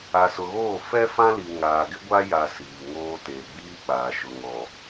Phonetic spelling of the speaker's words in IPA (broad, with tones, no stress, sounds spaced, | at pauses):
a˨ s ʊ˨ ɣ oː˦˨ f ɛ˦ f ã˦ l i˨ ŋ aː˨ ɡ ɪ˦ ɡʷ a˦ j a˨ s iː˨ ŋ oː˦ t eː˨ ɡ͡b iː˦ k͡p aː˨ ʃ ʊ˨ ŋ ɔ˨